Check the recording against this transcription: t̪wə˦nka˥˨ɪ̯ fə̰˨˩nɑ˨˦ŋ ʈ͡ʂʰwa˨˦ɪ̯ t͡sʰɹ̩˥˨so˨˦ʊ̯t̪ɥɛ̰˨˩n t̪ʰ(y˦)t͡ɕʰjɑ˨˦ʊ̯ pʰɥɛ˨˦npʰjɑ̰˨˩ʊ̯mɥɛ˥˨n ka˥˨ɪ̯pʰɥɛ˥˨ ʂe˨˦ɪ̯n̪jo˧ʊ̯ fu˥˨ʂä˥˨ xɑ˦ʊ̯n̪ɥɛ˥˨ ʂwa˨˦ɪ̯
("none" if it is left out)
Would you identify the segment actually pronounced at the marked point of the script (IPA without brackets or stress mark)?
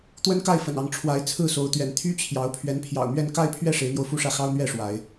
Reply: y˦